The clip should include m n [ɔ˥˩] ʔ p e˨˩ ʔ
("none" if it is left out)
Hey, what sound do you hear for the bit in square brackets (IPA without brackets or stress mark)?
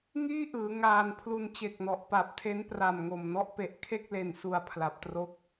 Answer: ɔ˥˩